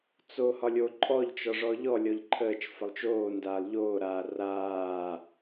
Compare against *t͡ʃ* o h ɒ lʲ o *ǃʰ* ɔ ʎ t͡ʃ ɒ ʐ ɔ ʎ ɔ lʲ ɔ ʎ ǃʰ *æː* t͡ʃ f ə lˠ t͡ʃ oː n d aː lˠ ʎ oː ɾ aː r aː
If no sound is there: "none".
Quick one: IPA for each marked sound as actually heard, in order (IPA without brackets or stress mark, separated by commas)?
t͡s, ǃʼ, əː